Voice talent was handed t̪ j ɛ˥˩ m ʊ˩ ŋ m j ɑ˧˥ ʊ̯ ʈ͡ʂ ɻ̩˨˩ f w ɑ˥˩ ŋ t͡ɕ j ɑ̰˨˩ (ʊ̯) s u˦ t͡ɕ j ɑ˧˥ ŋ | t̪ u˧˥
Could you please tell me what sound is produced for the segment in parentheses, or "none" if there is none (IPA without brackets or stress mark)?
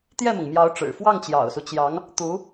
ʊ̯